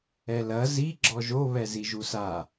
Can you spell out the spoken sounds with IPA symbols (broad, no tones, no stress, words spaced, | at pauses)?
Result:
ɛlɐ zi ɡ͡ǁɔʒo βɛziʒusa